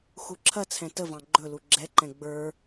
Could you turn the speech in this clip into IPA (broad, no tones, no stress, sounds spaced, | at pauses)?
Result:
x u ǁʰ ɐ t͡sʰ ɛ̃ t ə v ɑ̃ ɡ͡ǃ ɵ l u ɡ͡ǁ ɛ ǃ ɛ̃ ɡ͡b ə˞